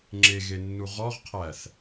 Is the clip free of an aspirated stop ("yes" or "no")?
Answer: no